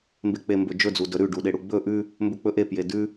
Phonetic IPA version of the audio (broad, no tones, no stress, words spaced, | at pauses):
mbek͡pembɵd͡ʒɵ d͡zudɵ ɾʉ ɖuɗeɽuɡ͡bɵ ʔʉ | mbɵk͡pɵʔe pjedʉ